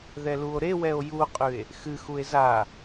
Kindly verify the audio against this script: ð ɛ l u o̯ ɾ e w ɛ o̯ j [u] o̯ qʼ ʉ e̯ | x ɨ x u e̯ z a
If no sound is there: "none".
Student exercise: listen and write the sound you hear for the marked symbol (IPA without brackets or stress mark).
u